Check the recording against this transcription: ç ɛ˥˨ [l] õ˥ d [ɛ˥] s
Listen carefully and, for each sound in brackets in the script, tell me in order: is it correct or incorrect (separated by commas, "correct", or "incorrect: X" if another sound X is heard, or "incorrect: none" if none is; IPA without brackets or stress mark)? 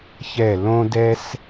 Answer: correct, correct